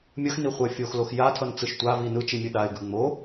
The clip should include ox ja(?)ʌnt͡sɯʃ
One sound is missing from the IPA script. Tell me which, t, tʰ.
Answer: tʰ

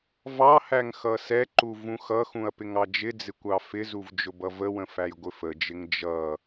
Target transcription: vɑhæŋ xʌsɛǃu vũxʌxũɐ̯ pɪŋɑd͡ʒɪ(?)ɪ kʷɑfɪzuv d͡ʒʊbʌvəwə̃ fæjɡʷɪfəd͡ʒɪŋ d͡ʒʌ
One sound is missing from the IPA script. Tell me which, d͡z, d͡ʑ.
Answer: d͡z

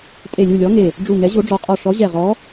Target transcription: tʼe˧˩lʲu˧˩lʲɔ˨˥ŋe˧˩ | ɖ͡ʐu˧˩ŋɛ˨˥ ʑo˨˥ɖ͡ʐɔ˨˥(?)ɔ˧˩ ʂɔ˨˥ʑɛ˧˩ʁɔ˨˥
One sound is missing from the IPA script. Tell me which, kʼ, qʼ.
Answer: qʼ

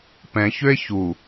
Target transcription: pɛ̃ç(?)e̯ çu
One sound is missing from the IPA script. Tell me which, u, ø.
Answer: ø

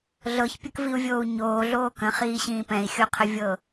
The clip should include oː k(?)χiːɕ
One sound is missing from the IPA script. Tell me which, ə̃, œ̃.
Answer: ə̃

